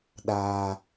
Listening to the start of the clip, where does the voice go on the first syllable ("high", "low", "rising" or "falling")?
high